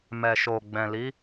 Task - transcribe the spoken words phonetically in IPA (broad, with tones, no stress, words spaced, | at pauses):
mɛ˨ʃo˨ ɡ͡bɛ̃˨li˨˦